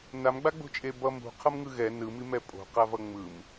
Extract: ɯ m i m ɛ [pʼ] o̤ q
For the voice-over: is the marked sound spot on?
yes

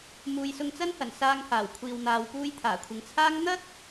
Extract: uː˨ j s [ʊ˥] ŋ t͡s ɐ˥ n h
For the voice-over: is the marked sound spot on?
no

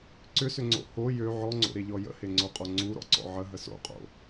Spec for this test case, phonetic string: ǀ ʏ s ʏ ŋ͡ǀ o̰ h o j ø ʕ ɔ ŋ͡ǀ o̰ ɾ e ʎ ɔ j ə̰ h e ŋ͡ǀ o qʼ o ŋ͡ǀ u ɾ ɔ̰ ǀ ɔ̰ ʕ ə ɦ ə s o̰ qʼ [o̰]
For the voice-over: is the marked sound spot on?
yes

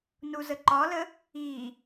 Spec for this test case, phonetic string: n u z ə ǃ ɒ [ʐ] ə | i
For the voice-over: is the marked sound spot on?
no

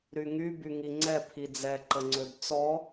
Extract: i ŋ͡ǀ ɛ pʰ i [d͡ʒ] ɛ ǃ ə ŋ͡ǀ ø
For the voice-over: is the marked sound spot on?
no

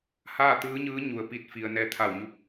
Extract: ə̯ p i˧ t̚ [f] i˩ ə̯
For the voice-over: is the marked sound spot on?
yes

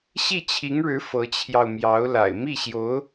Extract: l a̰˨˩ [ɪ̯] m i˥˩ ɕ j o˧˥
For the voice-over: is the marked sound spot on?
yes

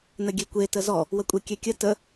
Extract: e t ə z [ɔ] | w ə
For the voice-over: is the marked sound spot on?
yes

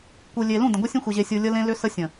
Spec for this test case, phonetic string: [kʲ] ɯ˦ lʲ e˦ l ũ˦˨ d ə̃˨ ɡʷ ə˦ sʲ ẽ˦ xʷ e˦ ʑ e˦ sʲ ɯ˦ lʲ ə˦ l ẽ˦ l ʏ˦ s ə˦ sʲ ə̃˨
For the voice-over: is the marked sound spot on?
no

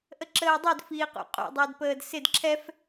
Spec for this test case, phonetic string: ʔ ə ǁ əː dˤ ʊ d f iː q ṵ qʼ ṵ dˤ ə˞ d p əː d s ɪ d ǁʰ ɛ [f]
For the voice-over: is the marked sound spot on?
yes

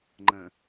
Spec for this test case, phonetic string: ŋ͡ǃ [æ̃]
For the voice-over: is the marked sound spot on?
no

